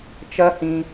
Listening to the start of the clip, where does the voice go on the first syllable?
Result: high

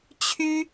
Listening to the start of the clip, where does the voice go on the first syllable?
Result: high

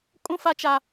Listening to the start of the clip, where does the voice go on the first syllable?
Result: high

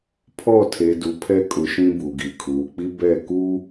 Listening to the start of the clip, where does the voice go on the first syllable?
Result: falling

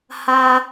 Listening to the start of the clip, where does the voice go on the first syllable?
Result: high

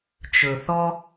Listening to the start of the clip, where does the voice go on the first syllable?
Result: low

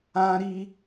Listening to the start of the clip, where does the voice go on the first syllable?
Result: high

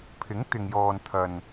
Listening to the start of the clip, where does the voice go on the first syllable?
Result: rising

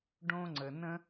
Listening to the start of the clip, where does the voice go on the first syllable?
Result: high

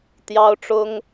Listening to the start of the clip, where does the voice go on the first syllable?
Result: high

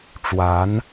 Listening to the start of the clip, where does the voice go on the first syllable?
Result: rising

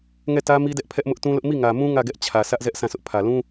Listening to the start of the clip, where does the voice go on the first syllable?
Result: falling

